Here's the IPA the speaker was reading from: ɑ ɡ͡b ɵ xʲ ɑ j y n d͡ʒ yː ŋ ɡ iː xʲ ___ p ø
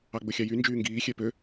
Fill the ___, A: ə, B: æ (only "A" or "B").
B